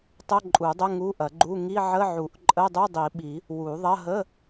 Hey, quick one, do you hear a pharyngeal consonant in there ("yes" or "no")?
yes